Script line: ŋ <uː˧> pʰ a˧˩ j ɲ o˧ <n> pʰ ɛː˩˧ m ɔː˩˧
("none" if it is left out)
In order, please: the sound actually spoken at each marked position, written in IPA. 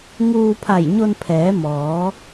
uː˧, n

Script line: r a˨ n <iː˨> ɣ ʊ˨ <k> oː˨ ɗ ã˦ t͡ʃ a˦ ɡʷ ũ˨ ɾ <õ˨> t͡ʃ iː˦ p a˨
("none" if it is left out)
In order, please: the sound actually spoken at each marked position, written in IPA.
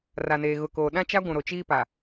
eː˨, k, o˨

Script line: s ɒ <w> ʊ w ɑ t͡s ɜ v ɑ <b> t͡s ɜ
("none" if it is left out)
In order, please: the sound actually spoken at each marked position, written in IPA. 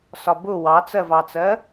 b, none

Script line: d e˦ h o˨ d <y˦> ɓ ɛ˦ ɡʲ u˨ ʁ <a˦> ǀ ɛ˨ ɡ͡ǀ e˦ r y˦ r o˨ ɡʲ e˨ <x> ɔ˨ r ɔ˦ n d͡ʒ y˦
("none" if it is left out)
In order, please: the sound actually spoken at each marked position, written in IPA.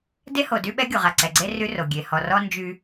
y˦, a˨, h

